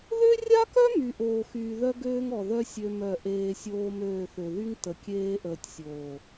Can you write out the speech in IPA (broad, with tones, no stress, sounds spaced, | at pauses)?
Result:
ð ø˦ rʲ a˦ k œ˦ m y˨ ʔ oː˨ x yː˨ ð œ˦ ɡ øː˦ ŋ ɔ˨ ð œ˦ sʲ ø˦ m œ˦˨ ʔ eː˨ sʲ oː˦ m øː˦˨ θ ø˨ ð y˦ ŋ t ə˨ kʲ eː˦ ʔ əː˨ tʲ sʲ oː˨